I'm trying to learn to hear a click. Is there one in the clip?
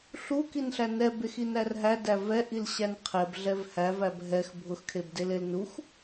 no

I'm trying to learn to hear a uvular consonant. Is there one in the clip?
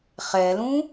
yes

